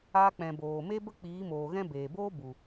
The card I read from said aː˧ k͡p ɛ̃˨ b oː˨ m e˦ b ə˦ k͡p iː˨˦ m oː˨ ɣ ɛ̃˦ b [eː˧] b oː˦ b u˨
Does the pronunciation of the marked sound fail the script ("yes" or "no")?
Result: yes